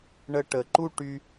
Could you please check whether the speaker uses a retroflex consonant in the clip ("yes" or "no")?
yes